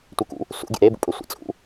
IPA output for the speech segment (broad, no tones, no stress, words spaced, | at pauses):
tʷɪkṵ | sṵɡʲḛ ɾebṵpʼø sʷḛt͡sʼṵ